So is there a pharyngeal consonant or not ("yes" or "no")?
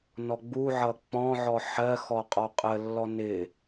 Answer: yes